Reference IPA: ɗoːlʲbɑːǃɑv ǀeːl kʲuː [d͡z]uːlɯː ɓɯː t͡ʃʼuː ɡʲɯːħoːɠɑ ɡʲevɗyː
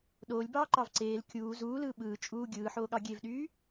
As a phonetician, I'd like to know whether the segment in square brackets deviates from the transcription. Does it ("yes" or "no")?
yes